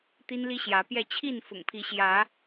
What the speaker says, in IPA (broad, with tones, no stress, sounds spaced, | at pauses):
t̪ i˦ n l i˦ ɕ j ä˨˦ p j ɛ˥˨ t͡ɕʰ i˥˨ n f ʊ̰˨˩ ŋ pʰ i˨˦ ɕ j ä˨˦